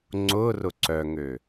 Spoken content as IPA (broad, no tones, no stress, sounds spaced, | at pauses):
ŋ͡ǀ ʊ r ʊ ǀ œ ŋ ø